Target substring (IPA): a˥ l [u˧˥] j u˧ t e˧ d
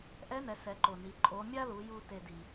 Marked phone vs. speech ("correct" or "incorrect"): incorrect